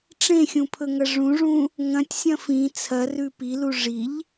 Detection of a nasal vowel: present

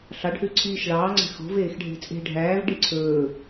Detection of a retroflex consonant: present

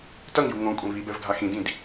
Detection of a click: absent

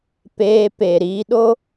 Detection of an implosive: present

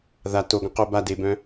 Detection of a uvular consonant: present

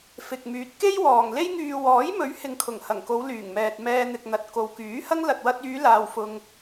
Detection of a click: absent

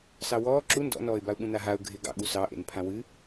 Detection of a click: present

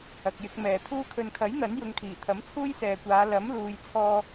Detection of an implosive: absent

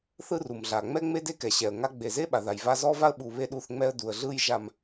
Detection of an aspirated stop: absent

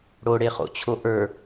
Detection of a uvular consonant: present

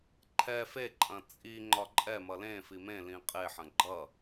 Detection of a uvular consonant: present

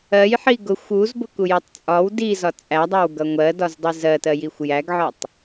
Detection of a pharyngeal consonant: present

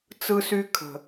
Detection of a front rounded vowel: present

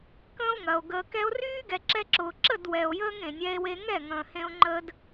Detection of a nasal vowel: present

